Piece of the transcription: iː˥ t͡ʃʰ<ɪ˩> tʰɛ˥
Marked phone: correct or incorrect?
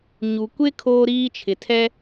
correct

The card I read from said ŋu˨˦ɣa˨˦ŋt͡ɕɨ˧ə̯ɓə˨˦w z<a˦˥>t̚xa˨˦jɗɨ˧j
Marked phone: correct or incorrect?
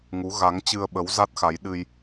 correct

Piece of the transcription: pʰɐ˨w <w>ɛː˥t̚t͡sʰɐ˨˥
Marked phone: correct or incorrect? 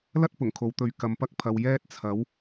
incorrect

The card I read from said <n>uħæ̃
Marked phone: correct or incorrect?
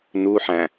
correct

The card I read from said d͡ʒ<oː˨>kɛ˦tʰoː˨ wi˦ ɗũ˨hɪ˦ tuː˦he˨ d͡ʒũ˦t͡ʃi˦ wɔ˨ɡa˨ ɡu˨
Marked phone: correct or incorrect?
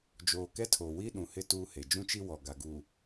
correct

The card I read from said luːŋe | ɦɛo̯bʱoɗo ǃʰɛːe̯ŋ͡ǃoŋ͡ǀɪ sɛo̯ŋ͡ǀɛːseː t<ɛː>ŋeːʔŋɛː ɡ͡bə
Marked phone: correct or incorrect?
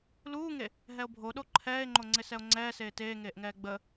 incorrect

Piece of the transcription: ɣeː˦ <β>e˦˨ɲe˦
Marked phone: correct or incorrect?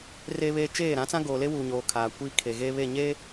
correct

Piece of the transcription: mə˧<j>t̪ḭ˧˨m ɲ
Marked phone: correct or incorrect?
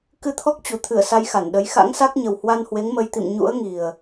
correct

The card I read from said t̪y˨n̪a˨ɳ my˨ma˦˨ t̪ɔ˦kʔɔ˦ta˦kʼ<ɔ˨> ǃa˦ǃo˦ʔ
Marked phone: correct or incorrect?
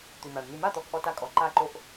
correct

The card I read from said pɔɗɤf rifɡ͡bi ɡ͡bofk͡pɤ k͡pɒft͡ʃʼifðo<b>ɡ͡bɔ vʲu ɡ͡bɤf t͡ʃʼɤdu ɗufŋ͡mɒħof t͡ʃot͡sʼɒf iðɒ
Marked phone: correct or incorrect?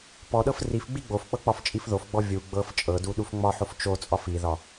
incorrect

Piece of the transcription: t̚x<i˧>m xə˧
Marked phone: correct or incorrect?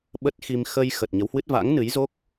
correct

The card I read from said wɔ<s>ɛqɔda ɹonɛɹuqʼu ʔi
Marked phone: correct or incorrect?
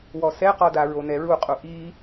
correct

